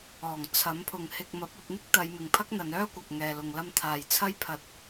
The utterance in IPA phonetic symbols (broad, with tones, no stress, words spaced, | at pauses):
ɔː˨˩ŋt͡sʰɐ˨˥mpʰʊ˨ŋhɪ˧k̚ mɐ˨˥p̚ɐ˧p̚n̪ɪ˥k̚ t̪ɐ˨˧jmɪ˨ŋpʰɐ˥k̚n̪ɐ˨˧n œː˥kʷɐ˨k̚ŋɛː˨ lʊ˨ŋlɐ˧m t̪ʰaː˨jt͡sʰɐ˥jpʰɐ˧t̚